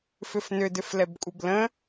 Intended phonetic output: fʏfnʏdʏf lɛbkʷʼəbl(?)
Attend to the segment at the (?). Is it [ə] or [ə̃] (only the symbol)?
ə̃